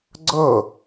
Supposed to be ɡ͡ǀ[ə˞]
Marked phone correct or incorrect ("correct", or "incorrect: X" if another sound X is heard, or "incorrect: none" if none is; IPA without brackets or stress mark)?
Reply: incorrect: ɤ